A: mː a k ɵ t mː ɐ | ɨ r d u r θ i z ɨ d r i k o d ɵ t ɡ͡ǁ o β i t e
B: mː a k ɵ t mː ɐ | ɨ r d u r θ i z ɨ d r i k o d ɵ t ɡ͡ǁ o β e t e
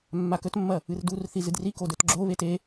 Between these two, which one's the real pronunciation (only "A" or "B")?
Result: B